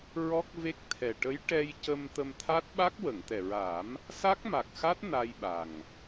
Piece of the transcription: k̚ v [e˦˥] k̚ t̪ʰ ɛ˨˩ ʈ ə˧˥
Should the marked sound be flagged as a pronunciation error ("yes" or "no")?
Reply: no